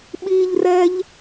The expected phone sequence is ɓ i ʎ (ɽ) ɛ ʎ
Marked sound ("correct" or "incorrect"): incorrect